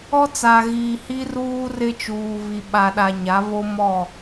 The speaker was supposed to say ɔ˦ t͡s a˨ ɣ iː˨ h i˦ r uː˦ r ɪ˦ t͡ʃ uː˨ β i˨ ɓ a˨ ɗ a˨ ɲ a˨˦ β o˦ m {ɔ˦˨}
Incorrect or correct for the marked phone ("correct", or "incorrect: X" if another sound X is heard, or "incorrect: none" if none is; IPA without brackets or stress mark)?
correct